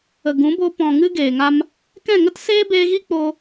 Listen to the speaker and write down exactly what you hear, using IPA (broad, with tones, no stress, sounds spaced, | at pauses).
ə˨ ɡ ũ˨˦ b o˧ p ɔ̃˨ ŋ ɨ˧ ɡ eː˨ ŋ a˧ m | k ɛ̃˦˨ ŋ ə˦ t s eː˦ b eː˧ ɣ i˦ k͡p o˧